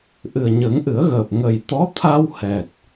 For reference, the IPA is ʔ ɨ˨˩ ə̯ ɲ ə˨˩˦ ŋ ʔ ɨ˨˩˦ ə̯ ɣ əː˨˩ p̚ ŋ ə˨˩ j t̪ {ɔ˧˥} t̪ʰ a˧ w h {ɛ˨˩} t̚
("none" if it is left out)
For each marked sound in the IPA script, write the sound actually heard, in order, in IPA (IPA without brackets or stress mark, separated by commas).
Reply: ɔ˧˥, ɛ˨˩